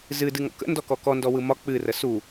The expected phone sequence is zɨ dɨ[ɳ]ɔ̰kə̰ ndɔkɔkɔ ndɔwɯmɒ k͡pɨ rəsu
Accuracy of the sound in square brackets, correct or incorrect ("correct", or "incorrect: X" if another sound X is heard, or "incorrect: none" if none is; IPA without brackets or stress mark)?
incorrect: ŋ